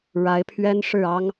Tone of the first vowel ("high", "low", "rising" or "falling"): rising